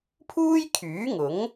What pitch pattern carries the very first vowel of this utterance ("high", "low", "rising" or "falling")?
high